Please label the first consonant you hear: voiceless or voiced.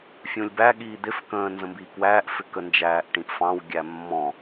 voiceless